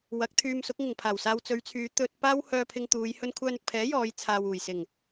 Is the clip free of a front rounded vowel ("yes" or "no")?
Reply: no